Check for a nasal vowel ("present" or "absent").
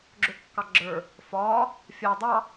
absent